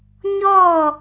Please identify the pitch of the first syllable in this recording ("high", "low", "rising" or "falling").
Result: falling